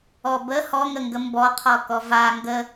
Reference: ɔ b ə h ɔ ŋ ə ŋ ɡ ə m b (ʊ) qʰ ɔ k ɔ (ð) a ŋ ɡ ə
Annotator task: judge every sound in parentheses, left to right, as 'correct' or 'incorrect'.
incorrect: ɔ, incorrect: v

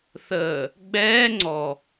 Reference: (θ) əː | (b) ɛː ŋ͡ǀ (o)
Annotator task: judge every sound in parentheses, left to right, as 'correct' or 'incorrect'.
correct, incorrect: ɡ͡b, incorrect: ɔ

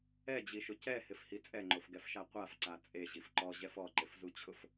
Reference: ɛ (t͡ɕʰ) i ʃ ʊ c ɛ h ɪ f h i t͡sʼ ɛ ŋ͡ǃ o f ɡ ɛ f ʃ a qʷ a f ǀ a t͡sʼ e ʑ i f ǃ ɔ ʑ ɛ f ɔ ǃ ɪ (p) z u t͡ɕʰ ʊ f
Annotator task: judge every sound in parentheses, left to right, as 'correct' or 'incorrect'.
incorrect: d͡ʑ, incorrect: f

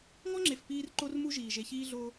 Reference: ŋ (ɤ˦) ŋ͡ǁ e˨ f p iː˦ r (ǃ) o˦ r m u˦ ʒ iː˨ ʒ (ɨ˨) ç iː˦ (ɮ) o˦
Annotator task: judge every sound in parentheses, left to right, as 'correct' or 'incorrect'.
incorrect: ɔ˦, correct, incorrect: e˨, correct

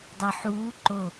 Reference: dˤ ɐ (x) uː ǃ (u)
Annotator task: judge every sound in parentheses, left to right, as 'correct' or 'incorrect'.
incorrect: ħ, incorrect: o

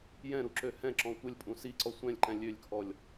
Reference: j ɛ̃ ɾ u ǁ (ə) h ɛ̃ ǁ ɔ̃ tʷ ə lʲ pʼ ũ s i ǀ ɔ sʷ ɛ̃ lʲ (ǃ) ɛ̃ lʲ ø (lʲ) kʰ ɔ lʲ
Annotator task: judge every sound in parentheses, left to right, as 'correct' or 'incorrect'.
incorrect: ø, correct, correct

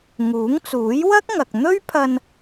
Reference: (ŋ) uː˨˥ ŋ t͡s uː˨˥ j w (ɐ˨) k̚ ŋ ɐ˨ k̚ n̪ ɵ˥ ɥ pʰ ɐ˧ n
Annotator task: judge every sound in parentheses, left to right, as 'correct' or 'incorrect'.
correct, incorrect: ɐ˥

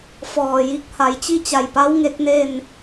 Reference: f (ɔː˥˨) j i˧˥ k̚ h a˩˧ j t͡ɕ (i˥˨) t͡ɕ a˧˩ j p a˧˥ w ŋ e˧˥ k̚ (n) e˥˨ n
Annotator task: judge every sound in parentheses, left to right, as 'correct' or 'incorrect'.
incorrect: ɔː˧˩, correct, correct

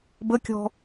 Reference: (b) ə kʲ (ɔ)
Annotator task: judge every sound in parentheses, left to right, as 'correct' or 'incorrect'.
correct, incorrect: ɔ̤

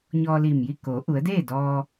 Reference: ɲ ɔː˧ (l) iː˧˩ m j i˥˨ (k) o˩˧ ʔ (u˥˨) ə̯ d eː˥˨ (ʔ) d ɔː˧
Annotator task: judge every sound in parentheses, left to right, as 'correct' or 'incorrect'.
correct, correct, incorrect: u˩˧, incorrect: none

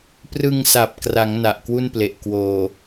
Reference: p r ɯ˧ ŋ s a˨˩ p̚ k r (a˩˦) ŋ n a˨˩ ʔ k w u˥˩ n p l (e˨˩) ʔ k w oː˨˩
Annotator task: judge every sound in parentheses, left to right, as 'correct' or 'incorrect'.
correct, correct

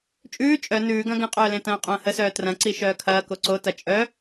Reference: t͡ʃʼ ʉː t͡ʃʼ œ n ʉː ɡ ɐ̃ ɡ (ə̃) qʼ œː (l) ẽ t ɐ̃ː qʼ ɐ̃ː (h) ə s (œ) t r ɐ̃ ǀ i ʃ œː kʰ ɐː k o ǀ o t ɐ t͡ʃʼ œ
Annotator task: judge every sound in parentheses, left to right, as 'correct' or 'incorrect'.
correct, correct, correct, incorrect: œː

